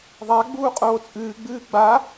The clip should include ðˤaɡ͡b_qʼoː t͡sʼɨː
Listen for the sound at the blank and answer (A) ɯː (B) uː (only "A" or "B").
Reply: B